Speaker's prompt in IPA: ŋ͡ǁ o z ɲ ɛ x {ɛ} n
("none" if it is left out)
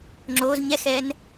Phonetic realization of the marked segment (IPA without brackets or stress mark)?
ɛ